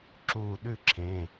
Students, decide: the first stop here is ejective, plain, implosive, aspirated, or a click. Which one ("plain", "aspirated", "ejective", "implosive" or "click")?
click